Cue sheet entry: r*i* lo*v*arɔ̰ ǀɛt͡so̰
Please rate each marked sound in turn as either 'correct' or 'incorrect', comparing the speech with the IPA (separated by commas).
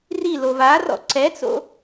correct, correct